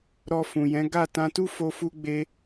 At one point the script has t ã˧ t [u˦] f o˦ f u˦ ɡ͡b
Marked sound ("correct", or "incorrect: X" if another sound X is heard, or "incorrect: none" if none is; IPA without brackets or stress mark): correct